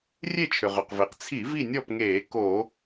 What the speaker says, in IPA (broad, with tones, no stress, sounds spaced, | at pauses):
rʲ e˥˨ t͡ʃʰ ʏ˩ ʁ ʏ˩ q v e˩ q t͡sʰ i˧˩˧ v i˥˨ nʲ ɔ˥˨ p ŋ eː˧˩˧ k o˧˩˧